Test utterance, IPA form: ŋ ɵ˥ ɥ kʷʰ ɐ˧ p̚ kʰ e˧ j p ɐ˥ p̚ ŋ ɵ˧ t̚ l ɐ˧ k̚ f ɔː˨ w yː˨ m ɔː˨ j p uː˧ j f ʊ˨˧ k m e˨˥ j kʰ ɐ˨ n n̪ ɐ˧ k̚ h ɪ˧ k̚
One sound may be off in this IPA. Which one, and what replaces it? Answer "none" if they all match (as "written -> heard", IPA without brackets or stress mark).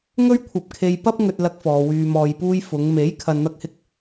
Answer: k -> ŋ